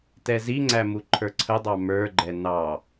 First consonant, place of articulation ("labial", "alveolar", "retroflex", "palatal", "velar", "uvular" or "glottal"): alveolar